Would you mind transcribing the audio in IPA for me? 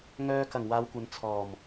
ŋ œː˧ k ɐ˨˩ ŋ w aː˨˧ w kʷ ɐ˨ n t͡sʰ ɔː˨˩ m

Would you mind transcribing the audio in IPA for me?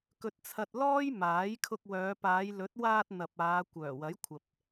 k ɵ˧ t̚ t͡sʰ ɐ˧ t̚ l ɔː˥ j m aː˨˥ j kʰ ʊ˧ k̚ w œː˨˧ p aː˨˧ j l ɵ˨˥ t̚ w aː˧ t̚ n̪ ɐ˨ p̚ aː˨˧ kʷ œː˨˩ w ɐ˨˥ j kʷʰ ɐ˨ p̚

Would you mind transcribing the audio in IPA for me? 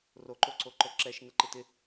r o ǃ o ǀ o ǃ œ ǁ ɛ ʃ n ə ǃ ɪ t ɪ

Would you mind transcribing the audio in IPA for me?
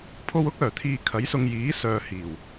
pʰ o˧ w ʊ˥ k̚ œː˨˩ t̪ʰ iː˨ kʰ ɐ˨˥ j s ʊ˧ ŋ j iː˨˥ s œː˨ h iː˨˩ w

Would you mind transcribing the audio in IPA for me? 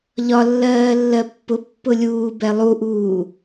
ʎ ɒ lː ɜː lː ɜ pː ʊ pː ʊ lʲ uː b ɛ lˠ u ʔ uː

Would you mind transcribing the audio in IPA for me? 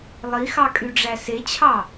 lˠ i x ɑ kʼ y ɖ͡ʐ æ s e t͡ɕʰ ɑ

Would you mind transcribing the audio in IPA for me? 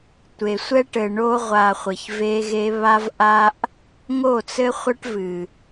tʷ e˨ sʷ ɛ˦ ʈ ɘ˨ ɳ o˦ ʁʷ a˨ χʷ ɘ˨ ç v e˦ ɣ e˦ β a˦ v ʔ a˦ ʔ | ŋ o˦˨ t͡s ɘ˦ χʷ a˦ ʈ v ɨ˨

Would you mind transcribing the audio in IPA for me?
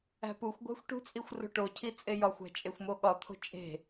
æ̤ p u xʷ ɡʷ æ̤ xʷ ʈ ṳ t͡sʼ i xʷ r o̤ ʈ o cʰ i t͡sʼ e j ɒ xʷ æ̤ t͡ʃʼ e xʷ m o ɠ ɒ t̪ʰ o̤ t͡ʃʼ e̤

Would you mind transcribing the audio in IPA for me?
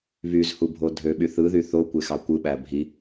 β y z h u bʱ o dʱ ø ɓ y θ ɯ ð y θ o kʷ e x ɑ kʷ ɯ ɓ æ bʱ i

